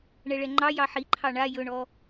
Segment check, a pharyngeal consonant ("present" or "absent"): present